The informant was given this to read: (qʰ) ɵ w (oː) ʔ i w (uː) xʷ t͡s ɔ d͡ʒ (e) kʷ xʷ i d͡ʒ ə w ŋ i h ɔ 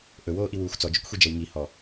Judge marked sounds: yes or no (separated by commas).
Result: no, yes, yes, no